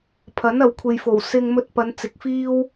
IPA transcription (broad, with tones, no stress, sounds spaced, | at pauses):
pʰ ɐ˨˥ n ɐ˨ w kʷʰ e˨ j f o˨˩ w s ɪ˧ ŋ m ɵ˧ t̚ p ɐ˨˧ n t͡s ɪ˨ k̚ f iː˥ w